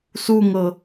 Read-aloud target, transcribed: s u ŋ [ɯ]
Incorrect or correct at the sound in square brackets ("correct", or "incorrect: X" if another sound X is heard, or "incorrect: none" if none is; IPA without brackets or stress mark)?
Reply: incorrect: ɤ